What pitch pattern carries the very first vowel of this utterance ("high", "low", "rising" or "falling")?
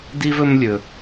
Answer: high